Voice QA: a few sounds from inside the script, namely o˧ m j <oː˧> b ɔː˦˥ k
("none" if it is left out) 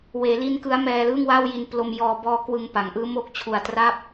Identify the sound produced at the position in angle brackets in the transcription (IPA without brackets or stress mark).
ɔː˧